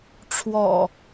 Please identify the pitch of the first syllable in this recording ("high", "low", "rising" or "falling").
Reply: low